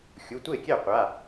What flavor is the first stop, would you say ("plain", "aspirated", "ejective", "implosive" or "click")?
plain